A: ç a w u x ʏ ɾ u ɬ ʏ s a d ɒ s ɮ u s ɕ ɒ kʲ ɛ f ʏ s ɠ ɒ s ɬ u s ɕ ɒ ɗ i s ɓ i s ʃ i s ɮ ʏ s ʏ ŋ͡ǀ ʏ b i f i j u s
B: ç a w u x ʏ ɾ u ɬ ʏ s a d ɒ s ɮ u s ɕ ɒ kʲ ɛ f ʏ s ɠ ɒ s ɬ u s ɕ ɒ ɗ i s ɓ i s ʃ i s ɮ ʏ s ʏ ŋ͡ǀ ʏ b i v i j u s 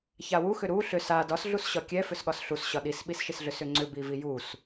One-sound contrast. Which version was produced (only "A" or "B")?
B